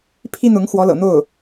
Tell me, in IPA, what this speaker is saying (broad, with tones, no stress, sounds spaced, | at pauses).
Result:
pʰ i˥ n̪ ʊ˧˥ ŋ x w ɔ˧˥ l ɤ̰˨˩ n̪ o˥˩ ʊ̯